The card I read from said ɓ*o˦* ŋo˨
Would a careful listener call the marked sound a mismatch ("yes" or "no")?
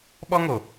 yes